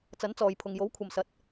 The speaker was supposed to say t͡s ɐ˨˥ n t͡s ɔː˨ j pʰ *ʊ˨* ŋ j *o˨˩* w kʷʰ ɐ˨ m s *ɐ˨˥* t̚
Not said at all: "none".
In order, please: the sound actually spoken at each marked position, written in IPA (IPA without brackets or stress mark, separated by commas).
ʊ˨, o˨˥, ɐ˨˥